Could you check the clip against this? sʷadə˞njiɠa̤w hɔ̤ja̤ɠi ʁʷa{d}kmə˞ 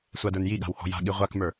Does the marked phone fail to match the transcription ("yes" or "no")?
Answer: yes